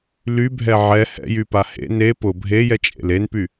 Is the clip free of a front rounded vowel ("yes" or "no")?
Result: no